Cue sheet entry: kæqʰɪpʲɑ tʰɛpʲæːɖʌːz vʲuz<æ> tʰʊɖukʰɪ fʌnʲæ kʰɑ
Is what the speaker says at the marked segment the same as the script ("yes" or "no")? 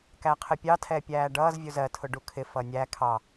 no